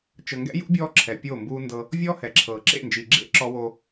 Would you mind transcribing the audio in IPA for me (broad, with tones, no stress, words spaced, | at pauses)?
t͡ʃɤ˨ŋɡɛ̰˦jṵ˦ bʲɔː˦ǁʰɛ˨ pʲoː˦˨mbuː˦ndɤ˦ | vʲɔː˦ hɛ˨ǁʰɤː˨ ǁḛ˦˨nd͡ʒi˨ ɡ͡ǁḛ˦ ǁɔ˦wo˦